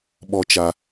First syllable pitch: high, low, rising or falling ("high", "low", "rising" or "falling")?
low